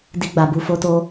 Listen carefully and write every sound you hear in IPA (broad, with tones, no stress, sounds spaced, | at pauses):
d i˦ ɡ͡b a˧ b u˧ f o˦ t o˦